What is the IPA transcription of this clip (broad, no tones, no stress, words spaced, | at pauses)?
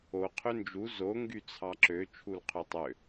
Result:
o qʰønd͡ʒu zo ŋɡyt͡sʰɑǁø t͡ʃʰulqʰytˤø